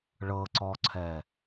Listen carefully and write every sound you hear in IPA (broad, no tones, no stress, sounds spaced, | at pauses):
ɭ ɤ ǀ ɔ ǀʰ ɛ